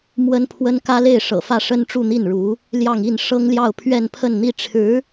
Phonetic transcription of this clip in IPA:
m w ə˥ n pʰ w ə˥ n k ä˥ l e˥˩ ɪ̯ ʂ ɤ̰˨˩ f ä˥˩ ʂ ə˥ n ʈ͡ʂ u˥˧ n̪ i˥˩ n ɻ u˧˥ | l j ɑ˥˧ ŋ i˥˩ n ʂ ɤ˥ ŋ l j ɑ˥˧ ʊ̯ pʰ ɥ ɛ˥˧ n pʰ ə˥˧ n n̪ i˥˩ ʈ͡ʂʰ ɻ̩˧˥

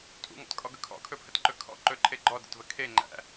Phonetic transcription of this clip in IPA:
tʼ ṵ ŋ ɔ̰ t kʼ ɔ ɡ ɵ kʰ ɔ̰ kʰ ɵ pʰ ə t ǃ ɵ kʰ ɔ̰ ǃ ɵ ǃʰ e ɡ͡ǃ ɔ d ə̰ t v ə kʰ e ŋ͡ǃ æ̰

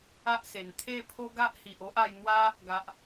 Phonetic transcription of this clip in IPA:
a˦ ʔ s e˨˩ n t̪ʰ e˥˧ pʰ o˦ ɡ a˦ ʔ h i˨ ʔ o˦ ʔ a˧ j n̪ w a˦ | ɡ a˨ ʔ

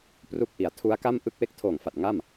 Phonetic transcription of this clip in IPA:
p r u˦˥ k̚ ʔ i˩˦ a̯ tʰ u˦˥ a̯ k a˥˩ m ʔ ɯ˥˩ k̚ w e˥˩ k̚ tʰ oː˨˩ ŋ f a˨˩ t̚ ŋ a˥˩ m

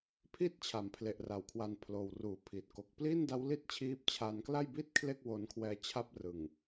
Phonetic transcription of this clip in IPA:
pʰ i˥˩ t̚ t͡ɕʰ a˩˦ m pʰ l e˨˩ ʔ r a˩˦ w kʰ w a˧ n pʰ l oː˨˩ w r uː˩˦ pʰ iː˨˩ t̚ k o˨˩ k̚ p l iː˥˩ n d a˦˥ w l i˥˩ t̚ t͡ɕʰ iː˦˥ p̚ t͡ɕʰ a˧ n k l a˥˩ j b i˥˩ t̚ kʰ l e˥˩ k̚ w o˧ n kʰ w ɛː˧ t͡ɕʰ a˦˥ p̚ r ɯ˨˩ ŋ

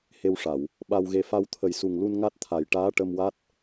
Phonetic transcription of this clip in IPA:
h e˧ w ʂ a˨˩˨ w | ɓ a˧ w ɣ e˧ f a˧ w t̪ʰ ə˨˩ j s u˨˩ ŋ l u˧ n ŋ a˦˥ t̚ t̪ʰ a˨˩ j ʈ aː˧˥ ʈ ə˧ m w a˦˥ t̚

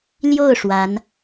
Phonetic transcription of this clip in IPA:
l j o˥˩ ʊ̯ ʂ w a˧˥ n

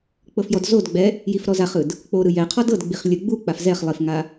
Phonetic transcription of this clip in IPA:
k͡p ɤ f j ɔ d z o d ɡ͡b ɛ | j i f ɾ ɔ z a χ ɯ d | k͡p o ɾ ɯ j ɛ qʰ ɔ d ɤ d ɡ͡b i χ lʲ ɯ ɡ͡b u k͡p a f z ɛ χ lˠ i f ŋ a

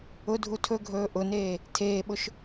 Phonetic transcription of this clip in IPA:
ʊ dʱ u tʰ ɵ ɡʱ ɵː ʔ ʊ n eː | tʰ eː ɓ ʊ ʃ

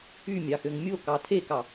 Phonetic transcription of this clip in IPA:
y mʲ ɑ x ø ŋ mʲ o k ɑ tʰ e k ɑ

